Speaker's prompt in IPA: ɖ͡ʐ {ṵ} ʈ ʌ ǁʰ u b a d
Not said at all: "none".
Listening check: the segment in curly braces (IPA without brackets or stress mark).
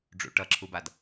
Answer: ṵ